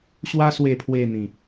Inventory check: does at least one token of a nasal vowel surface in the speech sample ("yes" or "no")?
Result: yes